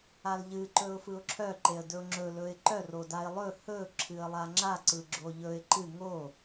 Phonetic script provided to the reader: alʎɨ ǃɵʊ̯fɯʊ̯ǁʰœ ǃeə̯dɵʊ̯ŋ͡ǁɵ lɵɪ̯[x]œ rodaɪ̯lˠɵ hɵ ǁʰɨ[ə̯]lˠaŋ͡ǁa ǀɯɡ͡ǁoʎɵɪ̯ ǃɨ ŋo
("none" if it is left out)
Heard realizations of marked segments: ǃ, ə̯

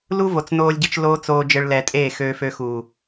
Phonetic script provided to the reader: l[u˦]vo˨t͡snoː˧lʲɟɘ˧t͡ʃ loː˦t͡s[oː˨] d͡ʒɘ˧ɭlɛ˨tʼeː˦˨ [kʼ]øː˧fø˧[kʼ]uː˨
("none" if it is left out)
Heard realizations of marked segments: u˦, oː˧, x, x

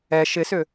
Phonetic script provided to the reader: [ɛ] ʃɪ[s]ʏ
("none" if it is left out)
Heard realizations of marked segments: ɛ, s

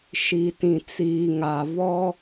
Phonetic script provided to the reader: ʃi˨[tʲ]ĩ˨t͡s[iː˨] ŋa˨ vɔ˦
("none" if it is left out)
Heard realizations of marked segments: t, iː˨

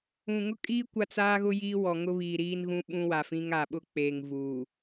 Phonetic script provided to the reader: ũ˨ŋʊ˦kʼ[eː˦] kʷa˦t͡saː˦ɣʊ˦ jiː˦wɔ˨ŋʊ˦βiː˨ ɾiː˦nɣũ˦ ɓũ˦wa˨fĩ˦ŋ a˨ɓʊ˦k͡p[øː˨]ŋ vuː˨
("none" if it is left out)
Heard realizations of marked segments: iː˦, eː˨

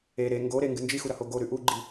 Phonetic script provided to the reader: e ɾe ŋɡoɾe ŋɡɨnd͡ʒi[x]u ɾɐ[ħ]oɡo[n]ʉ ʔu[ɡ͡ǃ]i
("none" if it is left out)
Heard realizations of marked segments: x, h, ɾ, ɡ͡ǃ

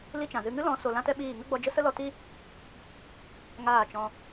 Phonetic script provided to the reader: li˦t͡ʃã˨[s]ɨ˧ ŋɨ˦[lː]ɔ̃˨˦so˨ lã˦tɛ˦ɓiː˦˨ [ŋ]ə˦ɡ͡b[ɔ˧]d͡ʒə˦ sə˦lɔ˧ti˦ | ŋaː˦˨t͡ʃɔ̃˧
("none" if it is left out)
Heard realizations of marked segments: z, l, ŋ, ɔ˧

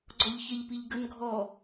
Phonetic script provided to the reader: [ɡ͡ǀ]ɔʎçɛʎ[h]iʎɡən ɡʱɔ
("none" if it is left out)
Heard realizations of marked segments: ɡ͡ǀ, p

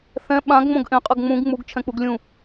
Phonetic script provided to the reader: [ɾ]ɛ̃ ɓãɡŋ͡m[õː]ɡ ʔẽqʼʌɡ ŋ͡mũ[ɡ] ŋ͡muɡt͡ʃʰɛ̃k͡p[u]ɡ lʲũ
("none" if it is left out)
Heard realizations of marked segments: θ, õ, ɡ, u

